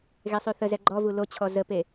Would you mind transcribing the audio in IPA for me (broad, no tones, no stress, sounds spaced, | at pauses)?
ɣ e sˤ y θ ə z ɛ ɡ͡ǃ ɔ v u l o t͡ɕʰ ɔ z ə p e